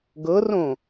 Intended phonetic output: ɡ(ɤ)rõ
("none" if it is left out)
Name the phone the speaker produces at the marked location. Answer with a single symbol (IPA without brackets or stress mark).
ɤ